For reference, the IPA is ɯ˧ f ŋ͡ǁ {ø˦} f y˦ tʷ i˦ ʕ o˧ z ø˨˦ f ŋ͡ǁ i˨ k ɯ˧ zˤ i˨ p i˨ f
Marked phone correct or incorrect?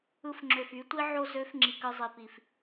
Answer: incorrect